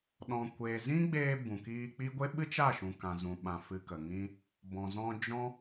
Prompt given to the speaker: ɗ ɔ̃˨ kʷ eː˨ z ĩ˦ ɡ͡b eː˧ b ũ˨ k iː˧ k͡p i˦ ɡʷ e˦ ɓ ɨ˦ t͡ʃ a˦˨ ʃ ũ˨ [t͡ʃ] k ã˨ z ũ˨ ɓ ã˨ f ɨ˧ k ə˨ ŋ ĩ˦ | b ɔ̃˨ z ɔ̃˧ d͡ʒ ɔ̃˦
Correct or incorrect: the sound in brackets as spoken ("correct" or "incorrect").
incorrect